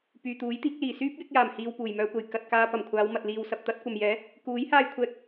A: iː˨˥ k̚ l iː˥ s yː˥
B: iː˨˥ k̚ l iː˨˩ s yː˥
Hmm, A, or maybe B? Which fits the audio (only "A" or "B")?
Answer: B